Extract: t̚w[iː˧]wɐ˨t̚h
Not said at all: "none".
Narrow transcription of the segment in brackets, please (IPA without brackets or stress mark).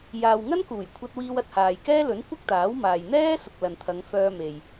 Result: iː˧